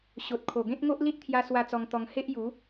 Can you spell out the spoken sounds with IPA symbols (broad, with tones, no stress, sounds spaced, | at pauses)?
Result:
ɕ o˨ t̚ kʰ o˨˩ ɡ ẽ˦ t̚ ŋ o˦ ʔ l i˦ t̚ t̪ʰ j a˧ s w a˦ t͡s ɔ˧ ŋ t̪ ɔ˧ ŋ h e˦ ʔ j u˨˦